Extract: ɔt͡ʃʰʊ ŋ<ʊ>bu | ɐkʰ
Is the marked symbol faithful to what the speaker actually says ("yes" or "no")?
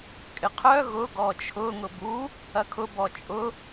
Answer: yes